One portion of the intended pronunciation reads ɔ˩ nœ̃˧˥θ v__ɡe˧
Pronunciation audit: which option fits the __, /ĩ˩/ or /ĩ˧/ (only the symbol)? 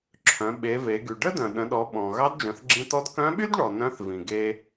ĩ˩